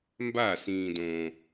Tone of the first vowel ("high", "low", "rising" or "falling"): falling